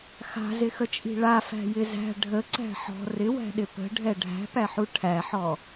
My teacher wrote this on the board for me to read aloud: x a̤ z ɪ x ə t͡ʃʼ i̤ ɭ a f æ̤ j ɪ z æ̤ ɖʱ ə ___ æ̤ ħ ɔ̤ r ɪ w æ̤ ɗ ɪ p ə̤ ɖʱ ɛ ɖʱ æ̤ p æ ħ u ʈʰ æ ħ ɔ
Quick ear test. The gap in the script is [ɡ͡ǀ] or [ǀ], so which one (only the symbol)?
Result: ǀ